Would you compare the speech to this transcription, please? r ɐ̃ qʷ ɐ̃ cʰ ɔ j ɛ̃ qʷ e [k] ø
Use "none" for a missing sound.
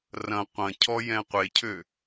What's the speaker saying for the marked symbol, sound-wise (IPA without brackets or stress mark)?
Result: cʰ